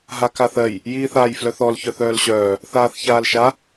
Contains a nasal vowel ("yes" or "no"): no